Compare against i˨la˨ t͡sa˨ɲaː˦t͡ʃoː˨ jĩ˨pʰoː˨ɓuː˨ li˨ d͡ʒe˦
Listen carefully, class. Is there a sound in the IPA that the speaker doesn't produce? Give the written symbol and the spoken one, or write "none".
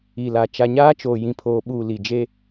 t͡s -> t͡ʃ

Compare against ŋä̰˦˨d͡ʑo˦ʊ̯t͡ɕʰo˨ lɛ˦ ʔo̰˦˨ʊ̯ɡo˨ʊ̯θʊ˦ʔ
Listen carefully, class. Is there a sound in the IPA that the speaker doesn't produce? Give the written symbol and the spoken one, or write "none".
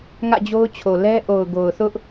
o̰˦˨ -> o˨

